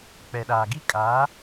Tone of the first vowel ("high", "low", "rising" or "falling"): low